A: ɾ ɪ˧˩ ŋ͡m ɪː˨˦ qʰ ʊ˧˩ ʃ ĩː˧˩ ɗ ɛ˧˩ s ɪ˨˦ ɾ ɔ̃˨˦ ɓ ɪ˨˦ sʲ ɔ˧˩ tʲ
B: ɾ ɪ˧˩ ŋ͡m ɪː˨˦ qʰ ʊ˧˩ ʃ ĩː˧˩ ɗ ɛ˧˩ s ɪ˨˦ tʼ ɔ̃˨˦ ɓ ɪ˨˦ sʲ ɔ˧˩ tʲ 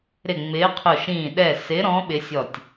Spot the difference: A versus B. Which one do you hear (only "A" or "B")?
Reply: A